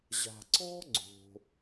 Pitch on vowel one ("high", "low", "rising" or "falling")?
low